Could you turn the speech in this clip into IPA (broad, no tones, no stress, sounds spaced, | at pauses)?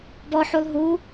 b ɔ ħ u lˠ ɦ u